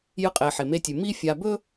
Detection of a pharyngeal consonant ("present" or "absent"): present